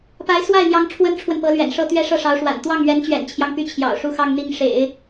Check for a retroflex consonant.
present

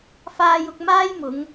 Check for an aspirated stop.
absent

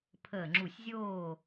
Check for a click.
present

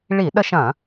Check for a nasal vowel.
present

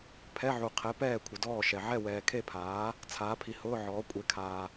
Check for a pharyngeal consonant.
present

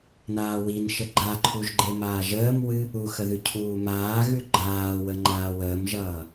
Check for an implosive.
absent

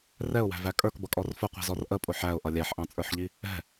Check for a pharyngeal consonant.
present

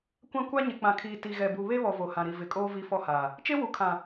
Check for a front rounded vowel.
absent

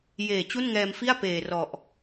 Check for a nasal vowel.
absent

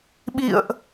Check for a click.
absent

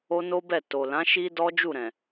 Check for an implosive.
absent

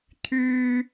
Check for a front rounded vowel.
present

